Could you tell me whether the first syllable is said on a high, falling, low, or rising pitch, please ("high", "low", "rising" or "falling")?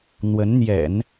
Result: rising